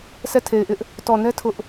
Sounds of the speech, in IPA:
sʰɛ˦˨tʰe˨ɪ̯ʔɪ˦ʔ | tɔ˨nɛ˦ tʰʊ˦ʔ

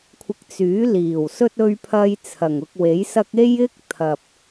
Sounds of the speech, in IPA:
kʷʰɪ˧k̚t͡syː˨˥liː˨˩wsɵ˥t̚ ɵ˥ɥpʰɐ˥j t͡sʰɐ˨˩ŋʊ˧k̚we˨˥jsɐ˥k̚ e˥jɪ˥k̚t̪ʰɐ˨p̚

